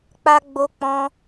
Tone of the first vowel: high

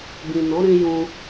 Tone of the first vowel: low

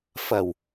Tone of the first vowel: low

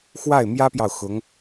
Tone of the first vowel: falling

